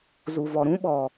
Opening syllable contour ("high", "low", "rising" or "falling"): low